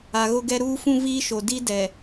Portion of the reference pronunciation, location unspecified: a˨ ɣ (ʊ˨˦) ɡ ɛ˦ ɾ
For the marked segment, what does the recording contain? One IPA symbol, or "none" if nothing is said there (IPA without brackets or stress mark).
ʊ˦